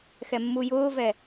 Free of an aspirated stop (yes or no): yes